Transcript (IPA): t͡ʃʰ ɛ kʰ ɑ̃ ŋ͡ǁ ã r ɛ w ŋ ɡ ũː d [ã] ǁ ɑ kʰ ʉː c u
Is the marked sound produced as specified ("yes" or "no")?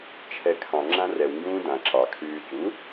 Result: yes